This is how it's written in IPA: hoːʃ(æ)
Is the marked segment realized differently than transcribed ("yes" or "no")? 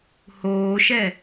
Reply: yes